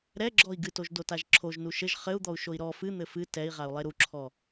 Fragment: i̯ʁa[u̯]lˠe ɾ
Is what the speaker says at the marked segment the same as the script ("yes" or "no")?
yes